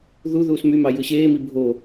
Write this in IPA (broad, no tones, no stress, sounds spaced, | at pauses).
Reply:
ð u ð uː s m y m ɑ j ɯ ɕ eː m i bʱ o